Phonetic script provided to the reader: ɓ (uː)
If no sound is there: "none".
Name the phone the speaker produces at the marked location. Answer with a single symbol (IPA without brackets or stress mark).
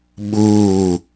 uː